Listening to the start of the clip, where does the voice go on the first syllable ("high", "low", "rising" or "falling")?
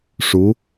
rising